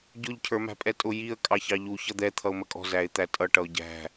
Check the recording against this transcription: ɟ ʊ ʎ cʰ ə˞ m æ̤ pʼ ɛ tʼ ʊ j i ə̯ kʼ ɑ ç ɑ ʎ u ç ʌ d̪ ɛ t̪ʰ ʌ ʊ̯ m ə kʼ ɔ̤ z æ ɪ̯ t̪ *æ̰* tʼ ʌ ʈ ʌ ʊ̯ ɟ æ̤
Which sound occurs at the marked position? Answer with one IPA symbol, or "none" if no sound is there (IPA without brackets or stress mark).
æ